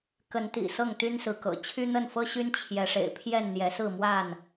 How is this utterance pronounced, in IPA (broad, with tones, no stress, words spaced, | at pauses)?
kə˨˦nt̪ḭ˨˩ sɤ˥˨ŋt̪y˦nsɹ̩˨˦kɤ̰˨˩ t͡ɕʰy˦n̪ə˥˨nfɤ˦ɕy˦n t͡ɕʰjɛ˨˦ʂḛ˨˩ɪ̯pʰjɛ˥˨n n̪jɛ˨˦sɹ̩˥˨ mwa˥˨n